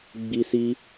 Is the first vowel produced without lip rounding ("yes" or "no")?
yes